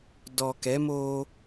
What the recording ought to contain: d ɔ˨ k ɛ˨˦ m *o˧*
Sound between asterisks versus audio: correct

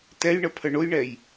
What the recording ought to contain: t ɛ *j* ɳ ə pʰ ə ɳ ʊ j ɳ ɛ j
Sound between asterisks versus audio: correct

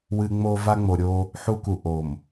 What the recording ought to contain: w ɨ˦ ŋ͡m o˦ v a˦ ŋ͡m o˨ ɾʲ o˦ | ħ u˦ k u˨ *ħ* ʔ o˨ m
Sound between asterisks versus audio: incorrect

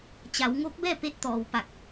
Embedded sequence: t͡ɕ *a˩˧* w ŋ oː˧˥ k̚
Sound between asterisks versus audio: correct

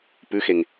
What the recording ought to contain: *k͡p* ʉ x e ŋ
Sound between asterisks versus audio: incorrect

